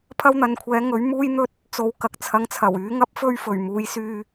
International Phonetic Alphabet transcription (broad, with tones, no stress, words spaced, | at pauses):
pʰɐ˥wn̪ɐ˨nkʷʰɛː˨˥ ŋɵ˨˥ɥ muː˥jn̪ɵ˥t̚ | t͡so˨w kɐ˨k̚t͡sʰɐ˨˧ŋt͡sʰɐ˨˩wyː˨˥ ŋɐ˥p̚fɵ˥ɥfɵ˨˩ɥ muː˨˥jsyː˧